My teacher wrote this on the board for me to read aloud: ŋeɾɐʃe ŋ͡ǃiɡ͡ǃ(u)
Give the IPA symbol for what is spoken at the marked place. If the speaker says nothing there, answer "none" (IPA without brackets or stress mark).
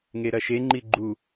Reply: u